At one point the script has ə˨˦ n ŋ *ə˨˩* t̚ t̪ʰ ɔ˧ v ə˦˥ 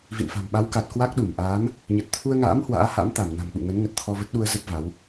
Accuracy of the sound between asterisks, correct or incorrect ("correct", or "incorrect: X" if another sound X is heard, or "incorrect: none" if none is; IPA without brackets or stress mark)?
correct